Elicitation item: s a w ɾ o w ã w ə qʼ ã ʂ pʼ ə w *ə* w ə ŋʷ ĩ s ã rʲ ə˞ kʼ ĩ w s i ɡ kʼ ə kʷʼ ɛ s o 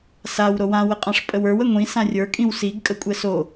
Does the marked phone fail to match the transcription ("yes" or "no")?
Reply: yes